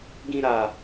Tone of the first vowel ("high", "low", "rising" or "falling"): high